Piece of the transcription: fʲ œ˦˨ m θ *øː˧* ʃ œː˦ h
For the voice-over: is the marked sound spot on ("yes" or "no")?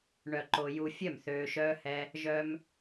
yes